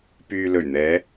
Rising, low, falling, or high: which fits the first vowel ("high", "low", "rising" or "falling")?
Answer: low